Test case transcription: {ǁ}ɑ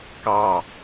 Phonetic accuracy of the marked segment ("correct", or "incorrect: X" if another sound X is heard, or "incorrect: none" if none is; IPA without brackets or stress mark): incorrect: k